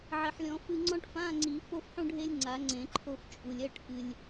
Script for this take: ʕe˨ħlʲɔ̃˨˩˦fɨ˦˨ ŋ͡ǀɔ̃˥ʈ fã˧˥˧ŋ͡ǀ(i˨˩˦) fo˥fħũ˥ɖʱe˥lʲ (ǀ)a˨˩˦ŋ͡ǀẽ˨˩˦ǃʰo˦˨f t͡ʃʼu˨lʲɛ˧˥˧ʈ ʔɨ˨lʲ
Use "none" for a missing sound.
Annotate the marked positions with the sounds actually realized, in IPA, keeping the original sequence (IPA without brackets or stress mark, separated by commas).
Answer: i˨˩˦, ŋ͡ǀ